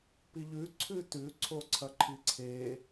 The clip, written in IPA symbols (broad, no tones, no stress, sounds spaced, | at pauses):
p i ʎ ʉ ǀʰ ʉ t ʉ ǀʰ o ǀʰ ɐ ǃʰ i ǀʰ e